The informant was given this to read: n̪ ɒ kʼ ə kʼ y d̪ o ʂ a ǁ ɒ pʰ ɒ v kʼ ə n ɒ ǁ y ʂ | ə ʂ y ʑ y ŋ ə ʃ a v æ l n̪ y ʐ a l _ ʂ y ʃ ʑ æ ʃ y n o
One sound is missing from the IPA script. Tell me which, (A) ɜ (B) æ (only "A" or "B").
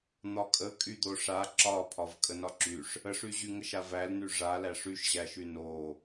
B